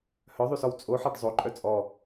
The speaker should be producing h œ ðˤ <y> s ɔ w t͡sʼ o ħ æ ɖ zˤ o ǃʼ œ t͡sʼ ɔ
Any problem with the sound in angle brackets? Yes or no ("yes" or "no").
no